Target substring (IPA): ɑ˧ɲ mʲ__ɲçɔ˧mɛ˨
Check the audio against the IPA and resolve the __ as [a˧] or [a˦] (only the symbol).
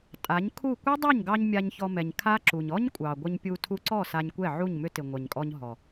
a˧